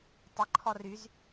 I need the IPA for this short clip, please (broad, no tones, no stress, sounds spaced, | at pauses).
tˤ ɪ ǃʰ ɔ r y z